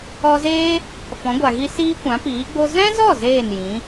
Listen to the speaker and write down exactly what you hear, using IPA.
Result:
ɔ˧ z eː˦ | f ɔ̃˨˦ ɡʷ a˨ ɣ i˦ s iː˦ kʷ ã˨˦ p iː˨˦ ɡ͡b o˦ z ɛ̃˦ z ɔ˦˨ z eː˦˨ n j ĩ˨˦

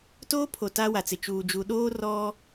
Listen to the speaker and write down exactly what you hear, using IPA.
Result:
t oː˦ pʰ o˨ t a˦ w a˨ t͡s ɪ˨ t͡ʃ uː˨ d͡ʒ u˨ ɗ oː˦ r ɔ˦

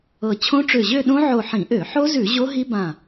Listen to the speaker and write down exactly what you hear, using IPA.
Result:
ɤ˧˩ t͡ɕʰ õ˦˥ ʈ͡ʂ ø˧˩ ʑ ø˥˧ ɗ õ˦˥ ʕ o˧˩ ħ ĩ˧˩˧ ʔ ø˧˩˧ ħ o˦˥ z ʉ˧˩˧ ʑ o˦˥ ɦ i˦˥ b ã˧˩

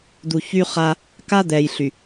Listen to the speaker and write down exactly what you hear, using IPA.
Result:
d̪ u˨ ç y˦ χ a˦ | k a˦ d̪ ɛ˨ j ɬ y˨

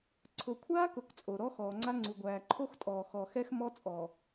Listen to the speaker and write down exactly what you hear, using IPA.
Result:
ǀʰ ʊ˨ kʷʰ aː˦ k ʊ˨ k t͡sʼ o˨ ɾ ɔ˦ x ɔː˨ ŋ͡ǀ a˦ ŋ͡ǀ u˨ ɡʷ æː˨ ǃʰ o˦ x tʼ ɔː˨ x ɔ˨ x ɛ˦ x m ɔ˦ t͡sʼ ɔ˨

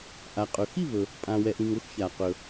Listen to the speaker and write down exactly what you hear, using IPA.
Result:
ʔ a˩ qʼ ɵ˩ x i˥˨ β ɵ˩ | pʼ ã˩ w ɛ˩ ʔ ĩ˩ ŋ ʊ˥˨ x ç a˩ q ɵ˩

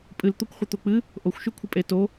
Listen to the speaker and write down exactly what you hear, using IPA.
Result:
pʼ ɨ l t̪ o kʷ χʷ ɨ t̪ o k͡p ɨ | ʔ o xʷ ʃ ʉ kʷʰ ɨ pʼ e t o

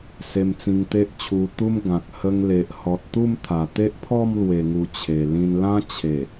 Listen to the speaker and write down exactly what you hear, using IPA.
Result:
s e˧ m t͡s ĩ˧ ŋ t̪ e˦ ʔ t͡ɕʰ u˧ t̪ u˦ m ɡ ã˨ k̚ h ə˧ ŋ l e˨ ʔ h ɔ˨ t̚ t̪ u˥˧ m t̪ʰ a˨˩ t̪ e˦ ʔ pʰ ɔ˥˧ m l w e˨˩ ŋ u˨˩ t͡ɕʰ e˨˩ l ĩ˧ n l ã˦ t͡ɕʰ e˨˩

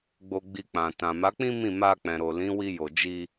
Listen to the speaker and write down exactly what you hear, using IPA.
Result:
ɡ͡b o˧ ɡ͡b i˧ k͡p ã˨ t ã˨ m a˨˦ k͡p ĩ˦ m ĩ˦˨ m a˧ k͡p ɛ̃˨ ɾ o˨ l ĩ˨˦ w i˧ j o˨ d͡ʒ i˧

